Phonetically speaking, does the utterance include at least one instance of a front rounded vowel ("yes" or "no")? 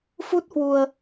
no